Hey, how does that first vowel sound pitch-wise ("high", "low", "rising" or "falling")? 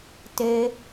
high